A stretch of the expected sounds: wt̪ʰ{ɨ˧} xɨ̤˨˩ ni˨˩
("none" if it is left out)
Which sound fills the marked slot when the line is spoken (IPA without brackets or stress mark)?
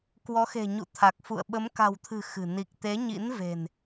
ɨ̤˨˩